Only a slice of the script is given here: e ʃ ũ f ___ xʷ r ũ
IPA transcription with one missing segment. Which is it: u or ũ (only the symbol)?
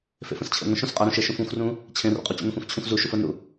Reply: ũ